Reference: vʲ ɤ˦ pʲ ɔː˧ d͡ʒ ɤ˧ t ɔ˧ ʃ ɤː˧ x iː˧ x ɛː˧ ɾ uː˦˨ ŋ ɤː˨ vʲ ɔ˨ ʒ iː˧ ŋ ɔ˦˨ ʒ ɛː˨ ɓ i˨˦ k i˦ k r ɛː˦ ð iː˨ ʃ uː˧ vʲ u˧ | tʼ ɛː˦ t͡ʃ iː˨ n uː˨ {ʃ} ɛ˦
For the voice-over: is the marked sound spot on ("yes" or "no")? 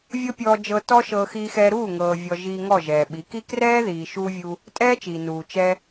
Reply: no